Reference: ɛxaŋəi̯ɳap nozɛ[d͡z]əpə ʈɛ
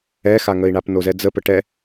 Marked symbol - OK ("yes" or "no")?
yes